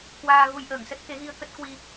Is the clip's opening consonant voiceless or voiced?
voiceless